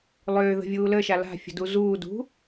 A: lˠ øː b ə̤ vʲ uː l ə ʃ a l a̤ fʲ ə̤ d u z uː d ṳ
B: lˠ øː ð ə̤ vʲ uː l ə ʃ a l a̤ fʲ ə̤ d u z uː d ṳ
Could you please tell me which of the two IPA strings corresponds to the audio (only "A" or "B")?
B